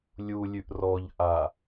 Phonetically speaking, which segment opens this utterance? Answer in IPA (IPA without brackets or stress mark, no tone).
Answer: lʲ